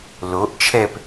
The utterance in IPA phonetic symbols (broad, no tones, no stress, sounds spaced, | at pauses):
l o ʔ t͡ʃʰ ɛ p